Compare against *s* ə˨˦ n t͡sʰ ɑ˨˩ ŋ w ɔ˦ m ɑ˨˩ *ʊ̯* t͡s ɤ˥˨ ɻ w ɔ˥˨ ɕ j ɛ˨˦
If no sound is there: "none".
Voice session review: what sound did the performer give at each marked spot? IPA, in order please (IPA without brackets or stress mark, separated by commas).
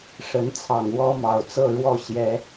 ʂ, ʊ̯